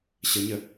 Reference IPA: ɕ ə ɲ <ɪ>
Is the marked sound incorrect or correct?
incorrect